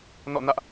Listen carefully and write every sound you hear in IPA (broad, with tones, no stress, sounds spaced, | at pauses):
n ɔ̰˦˨ n ä˦ ʔ